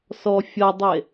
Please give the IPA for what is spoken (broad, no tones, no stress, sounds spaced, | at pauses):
s ɔ fʲ ʌ dˤ e